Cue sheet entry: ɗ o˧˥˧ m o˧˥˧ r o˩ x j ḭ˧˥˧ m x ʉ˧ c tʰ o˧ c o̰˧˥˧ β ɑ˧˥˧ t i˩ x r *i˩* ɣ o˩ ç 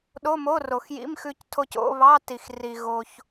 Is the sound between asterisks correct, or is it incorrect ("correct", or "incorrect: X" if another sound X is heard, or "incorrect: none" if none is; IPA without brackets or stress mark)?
correct